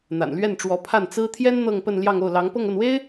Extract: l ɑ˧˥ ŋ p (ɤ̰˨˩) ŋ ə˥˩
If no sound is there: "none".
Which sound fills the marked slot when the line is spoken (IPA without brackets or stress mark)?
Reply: ɤ˥˧